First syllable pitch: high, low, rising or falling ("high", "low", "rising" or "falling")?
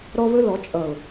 high